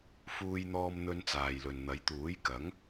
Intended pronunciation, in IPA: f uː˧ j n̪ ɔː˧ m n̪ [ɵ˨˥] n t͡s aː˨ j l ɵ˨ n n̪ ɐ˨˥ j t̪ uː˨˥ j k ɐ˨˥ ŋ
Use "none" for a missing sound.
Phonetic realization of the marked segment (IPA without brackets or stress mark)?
ɵ˧